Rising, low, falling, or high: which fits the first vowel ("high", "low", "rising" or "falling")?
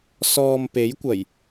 low